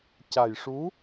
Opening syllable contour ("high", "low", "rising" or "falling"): low